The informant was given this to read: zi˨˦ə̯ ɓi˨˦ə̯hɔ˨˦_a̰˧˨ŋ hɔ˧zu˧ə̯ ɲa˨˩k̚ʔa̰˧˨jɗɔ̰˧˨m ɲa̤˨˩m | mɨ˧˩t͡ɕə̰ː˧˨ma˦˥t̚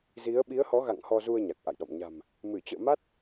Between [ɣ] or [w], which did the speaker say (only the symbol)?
ɣ